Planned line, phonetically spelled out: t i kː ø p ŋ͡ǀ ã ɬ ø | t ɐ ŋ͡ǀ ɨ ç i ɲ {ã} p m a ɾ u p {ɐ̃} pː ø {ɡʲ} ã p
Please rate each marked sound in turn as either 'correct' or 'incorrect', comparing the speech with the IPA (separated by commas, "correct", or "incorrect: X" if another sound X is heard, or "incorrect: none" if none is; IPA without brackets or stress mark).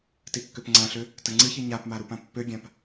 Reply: incorrect: a, incorrect: ã, correct